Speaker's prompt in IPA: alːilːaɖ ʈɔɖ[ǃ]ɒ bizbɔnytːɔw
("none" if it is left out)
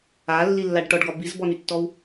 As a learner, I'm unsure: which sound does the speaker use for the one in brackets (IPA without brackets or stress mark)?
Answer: ɡ